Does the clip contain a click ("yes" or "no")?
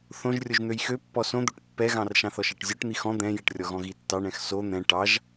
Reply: no